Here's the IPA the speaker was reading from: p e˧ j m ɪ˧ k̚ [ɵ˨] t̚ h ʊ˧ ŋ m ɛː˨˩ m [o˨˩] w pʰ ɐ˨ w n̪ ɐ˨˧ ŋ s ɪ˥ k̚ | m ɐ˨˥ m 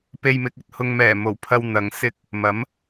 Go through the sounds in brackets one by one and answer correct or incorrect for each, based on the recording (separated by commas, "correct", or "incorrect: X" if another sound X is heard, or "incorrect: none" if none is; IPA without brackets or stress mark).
correct, correct